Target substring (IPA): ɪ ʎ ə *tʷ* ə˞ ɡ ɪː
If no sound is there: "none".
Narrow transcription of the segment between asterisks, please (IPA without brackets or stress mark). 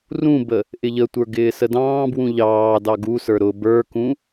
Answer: tʷ